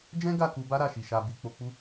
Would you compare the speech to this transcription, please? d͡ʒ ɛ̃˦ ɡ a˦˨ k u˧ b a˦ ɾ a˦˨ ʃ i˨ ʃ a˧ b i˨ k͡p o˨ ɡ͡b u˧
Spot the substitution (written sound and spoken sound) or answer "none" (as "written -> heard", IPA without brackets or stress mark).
ɡ͡b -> k͡p